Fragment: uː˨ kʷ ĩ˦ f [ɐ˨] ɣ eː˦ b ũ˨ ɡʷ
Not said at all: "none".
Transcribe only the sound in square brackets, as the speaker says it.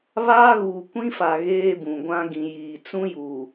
a˨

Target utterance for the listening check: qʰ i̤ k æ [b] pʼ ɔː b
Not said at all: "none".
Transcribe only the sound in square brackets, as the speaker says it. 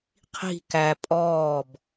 none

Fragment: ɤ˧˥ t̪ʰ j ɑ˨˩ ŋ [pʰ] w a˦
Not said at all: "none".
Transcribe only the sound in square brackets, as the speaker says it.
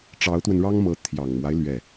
m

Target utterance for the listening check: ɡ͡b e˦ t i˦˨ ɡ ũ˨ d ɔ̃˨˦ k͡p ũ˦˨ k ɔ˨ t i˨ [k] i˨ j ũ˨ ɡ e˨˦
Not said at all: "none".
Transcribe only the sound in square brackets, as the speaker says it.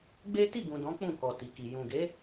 k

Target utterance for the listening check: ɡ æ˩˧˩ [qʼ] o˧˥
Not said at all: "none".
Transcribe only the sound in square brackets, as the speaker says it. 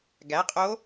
qʼ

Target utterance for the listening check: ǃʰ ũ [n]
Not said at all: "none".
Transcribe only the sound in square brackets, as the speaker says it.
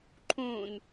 n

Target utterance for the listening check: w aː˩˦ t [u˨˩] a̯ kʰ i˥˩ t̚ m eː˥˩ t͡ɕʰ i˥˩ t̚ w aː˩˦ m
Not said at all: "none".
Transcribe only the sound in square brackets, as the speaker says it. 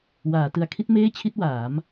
ɯ˨˩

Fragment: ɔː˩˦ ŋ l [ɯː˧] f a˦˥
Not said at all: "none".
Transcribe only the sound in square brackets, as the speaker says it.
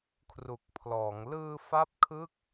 ɯː˧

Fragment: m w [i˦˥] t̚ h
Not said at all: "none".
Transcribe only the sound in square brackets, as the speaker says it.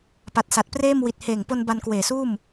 i˨˩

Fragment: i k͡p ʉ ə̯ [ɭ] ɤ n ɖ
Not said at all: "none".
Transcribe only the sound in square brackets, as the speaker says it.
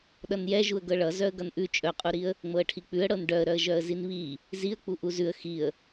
ɽ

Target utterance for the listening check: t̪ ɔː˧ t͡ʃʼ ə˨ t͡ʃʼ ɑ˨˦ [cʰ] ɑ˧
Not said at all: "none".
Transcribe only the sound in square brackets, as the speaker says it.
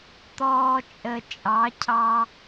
cʰ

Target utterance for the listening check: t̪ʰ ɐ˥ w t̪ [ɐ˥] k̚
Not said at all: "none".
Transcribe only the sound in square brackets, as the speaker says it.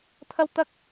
ɐ˥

